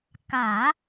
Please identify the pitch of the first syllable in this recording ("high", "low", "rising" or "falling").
low